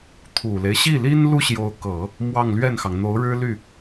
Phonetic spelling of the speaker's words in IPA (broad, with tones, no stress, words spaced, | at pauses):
t̪ʰu˨˩le˦ɪ̯ ɕi˥˩li˥n lu˥ɕjo˧˥ʊ̯kɤ˨˩˦ | mwɑ˥˧ŋlɥɛ˥˩nxɑ˩ŋ n̪o˧˥ʊ̯ɻɻ̩˥ly˥˩